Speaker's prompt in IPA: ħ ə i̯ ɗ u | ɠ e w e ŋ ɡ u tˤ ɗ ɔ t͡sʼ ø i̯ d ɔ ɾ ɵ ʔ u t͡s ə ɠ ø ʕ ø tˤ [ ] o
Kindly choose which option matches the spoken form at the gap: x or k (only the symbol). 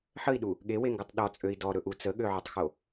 x